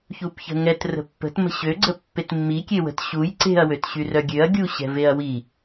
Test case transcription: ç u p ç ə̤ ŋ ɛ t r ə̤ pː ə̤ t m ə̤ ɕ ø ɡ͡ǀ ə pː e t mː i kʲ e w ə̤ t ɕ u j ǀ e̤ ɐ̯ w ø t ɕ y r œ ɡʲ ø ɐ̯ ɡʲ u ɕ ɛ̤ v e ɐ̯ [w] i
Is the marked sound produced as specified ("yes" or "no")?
yes